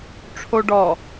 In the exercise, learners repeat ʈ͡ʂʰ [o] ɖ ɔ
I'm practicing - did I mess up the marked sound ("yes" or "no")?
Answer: no